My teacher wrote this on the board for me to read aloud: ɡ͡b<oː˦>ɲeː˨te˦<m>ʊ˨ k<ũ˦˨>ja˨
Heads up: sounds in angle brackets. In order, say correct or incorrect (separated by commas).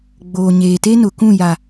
incorrect, incorrect, correct